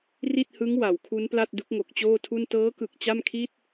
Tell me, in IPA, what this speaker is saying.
r i˥˩ t̚ h ɯ˦˥ ŋ w a˩˦ w kʰ u˦˥ n p l a˥˩ t̚ d u˦˥ k̚ ŋ o˨˩ k̚ t͡ɕ oː˥˩ tʰ u˥˩ n t ɤː˦˥ k ɯ˨˩ k̚ t͡ɕ a˥˩ m kʰ i˥˩ t̚

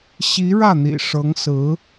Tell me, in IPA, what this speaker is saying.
ɕ i˧˥ ɻ ä˥˩ n̪ ḭ˨˩ ʂ ɤ˧˥ ŋ s ɹ̩˧˥

